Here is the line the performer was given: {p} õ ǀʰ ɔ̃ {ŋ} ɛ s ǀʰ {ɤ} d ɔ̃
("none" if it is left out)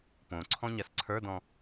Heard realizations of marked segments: p, ɲ, ə˞

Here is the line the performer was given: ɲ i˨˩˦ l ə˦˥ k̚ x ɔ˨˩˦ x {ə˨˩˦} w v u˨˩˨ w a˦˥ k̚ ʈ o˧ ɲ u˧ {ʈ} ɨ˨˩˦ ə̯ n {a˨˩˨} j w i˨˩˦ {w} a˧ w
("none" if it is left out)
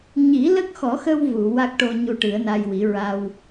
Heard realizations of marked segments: ə˧, ʈ, a˧, ɹ

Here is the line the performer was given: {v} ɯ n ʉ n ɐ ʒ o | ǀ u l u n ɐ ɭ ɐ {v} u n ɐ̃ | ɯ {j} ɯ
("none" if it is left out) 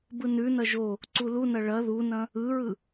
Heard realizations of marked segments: b, ð, ɹ

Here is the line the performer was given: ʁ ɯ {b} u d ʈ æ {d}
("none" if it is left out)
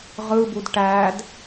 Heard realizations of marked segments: b, d

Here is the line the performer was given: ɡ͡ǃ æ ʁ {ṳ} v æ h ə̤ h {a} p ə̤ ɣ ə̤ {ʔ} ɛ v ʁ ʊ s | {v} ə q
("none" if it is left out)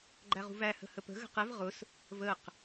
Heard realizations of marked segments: ṳ, ə, q, v

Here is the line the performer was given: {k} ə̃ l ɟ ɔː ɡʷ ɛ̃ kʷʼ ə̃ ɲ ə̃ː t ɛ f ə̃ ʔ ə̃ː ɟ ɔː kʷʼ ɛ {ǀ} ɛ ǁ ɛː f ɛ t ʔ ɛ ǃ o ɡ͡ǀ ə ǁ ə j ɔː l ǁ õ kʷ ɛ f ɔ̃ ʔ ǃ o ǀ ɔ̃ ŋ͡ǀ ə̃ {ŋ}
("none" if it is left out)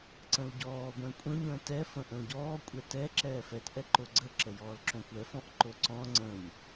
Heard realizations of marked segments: ǀ, t, ɲ

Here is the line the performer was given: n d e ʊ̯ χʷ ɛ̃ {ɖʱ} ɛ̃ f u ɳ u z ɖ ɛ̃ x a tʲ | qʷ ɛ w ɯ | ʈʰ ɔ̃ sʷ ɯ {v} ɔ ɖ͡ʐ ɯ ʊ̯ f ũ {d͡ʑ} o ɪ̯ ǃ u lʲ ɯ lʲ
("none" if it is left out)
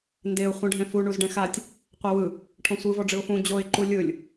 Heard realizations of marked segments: ɖʱ, v, d͡ʑ

